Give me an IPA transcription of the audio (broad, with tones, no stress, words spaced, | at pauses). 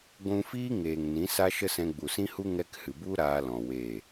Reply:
ɡʷũ˧fiː˦ ŋeː˨ŋ nĩ˨˦sa˦ʃə˦sɛ̃˧ ɡ͡bu˨sĩ˦hu˦ ŋɛ˧khɨ˨bu˦ ɾaː˧ lɔ̃˨ we˦˨